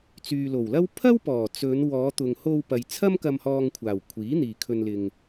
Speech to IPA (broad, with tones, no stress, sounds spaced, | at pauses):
t͡s yː˨ l o˨˩ w l ɐ˥ w pʰ ɐ˥ w p ɔː˨˩ t͡s ɵ˨˧ n w ɔː˨˧ t̪ ʊ˨ ŋ h o˧ w p ɐ˨ j t͡sʰ ɐ˥ m k ɐ˧ m h ɔː˧ ŋ kʷʰ aː˨˩ w kʷʰ iː˨˥ n̪ iː˨ kʰ ɵ˨ n l ɪ˨ ŋ